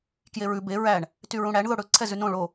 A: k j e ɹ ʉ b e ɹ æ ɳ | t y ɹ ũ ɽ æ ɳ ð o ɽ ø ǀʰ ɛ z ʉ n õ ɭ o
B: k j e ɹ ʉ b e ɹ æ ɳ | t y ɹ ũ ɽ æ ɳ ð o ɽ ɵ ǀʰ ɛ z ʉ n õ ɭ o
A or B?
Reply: B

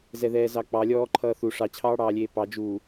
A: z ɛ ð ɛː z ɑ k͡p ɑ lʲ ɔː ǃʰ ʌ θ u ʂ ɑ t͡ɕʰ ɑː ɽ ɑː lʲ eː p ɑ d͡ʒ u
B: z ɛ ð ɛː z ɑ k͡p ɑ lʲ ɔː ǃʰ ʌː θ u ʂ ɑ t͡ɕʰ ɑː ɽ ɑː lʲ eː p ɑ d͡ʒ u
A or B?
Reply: B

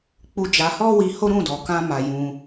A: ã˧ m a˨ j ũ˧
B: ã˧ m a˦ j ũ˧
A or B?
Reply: A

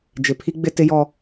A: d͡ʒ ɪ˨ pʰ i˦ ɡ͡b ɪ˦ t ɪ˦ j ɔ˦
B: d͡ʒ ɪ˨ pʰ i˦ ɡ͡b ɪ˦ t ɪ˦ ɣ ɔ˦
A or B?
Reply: A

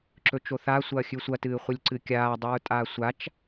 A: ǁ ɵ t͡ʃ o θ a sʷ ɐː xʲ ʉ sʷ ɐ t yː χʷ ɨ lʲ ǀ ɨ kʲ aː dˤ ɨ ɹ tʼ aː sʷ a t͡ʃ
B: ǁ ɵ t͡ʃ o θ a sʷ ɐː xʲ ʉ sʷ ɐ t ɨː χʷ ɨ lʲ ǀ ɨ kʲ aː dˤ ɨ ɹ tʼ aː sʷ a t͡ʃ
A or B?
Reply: B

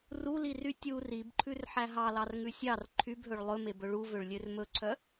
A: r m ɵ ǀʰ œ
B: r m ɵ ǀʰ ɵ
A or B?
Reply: A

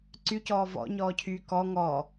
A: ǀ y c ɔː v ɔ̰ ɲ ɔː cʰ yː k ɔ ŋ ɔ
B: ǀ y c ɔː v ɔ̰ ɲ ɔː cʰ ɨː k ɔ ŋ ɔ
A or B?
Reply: A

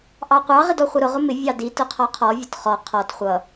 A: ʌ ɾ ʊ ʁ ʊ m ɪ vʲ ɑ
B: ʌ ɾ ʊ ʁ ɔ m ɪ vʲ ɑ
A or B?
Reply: A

